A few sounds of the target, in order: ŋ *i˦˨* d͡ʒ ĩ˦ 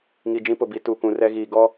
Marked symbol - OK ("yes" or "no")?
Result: no